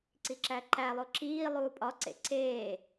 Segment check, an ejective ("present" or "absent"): present